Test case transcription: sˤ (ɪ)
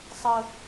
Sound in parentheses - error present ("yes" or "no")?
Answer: yes